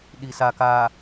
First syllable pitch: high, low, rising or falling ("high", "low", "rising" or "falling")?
low